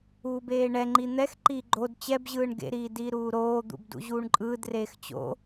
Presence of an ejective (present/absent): present